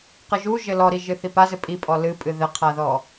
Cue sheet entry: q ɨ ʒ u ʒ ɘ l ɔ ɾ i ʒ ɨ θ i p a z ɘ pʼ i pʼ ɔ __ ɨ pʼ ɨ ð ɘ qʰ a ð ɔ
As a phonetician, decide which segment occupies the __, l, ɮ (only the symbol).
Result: l